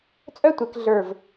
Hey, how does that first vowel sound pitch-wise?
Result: high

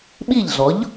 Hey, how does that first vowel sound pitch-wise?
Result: falling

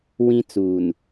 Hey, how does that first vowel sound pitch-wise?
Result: high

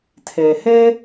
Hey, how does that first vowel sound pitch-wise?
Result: low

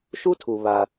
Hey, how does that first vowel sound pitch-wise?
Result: high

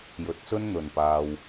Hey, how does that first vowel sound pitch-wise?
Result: rising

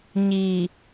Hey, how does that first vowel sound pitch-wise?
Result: low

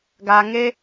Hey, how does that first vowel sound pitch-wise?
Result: low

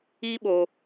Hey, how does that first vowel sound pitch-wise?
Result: high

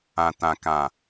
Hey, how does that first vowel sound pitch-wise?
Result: low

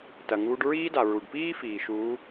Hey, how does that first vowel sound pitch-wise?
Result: low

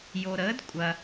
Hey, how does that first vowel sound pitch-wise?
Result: low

